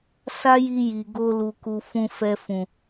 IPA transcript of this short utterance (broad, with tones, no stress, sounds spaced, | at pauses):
s a˦ j i˧ j i˨ ɡ o˧ l u˨ k u˨ f ũ˨ f ɛ˨ f ũ˨